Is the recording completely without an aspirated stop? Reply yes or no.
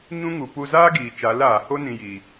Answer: yes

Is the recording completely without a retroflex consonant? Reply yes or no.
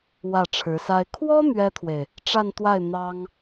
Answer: no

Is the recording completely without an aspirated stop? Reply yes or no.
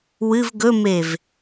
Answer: yes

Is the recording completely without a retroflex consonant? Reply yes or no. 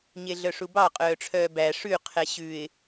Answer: no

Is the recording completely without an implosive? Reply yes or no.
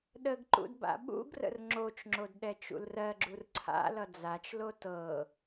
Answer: no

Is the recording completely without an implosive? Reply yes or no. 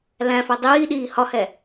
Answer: no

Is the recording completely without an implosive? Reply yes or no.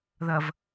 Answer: yes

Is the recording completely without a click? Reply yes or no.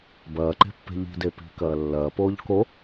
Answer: no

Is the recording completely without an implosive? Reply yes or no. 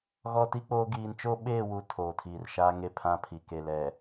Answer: no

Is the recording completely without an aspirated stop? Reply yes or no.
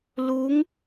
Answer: yes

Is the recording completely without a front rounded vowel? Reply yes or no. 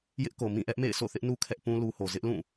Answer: yes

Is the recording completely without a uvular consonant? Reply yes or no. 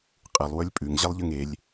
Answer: no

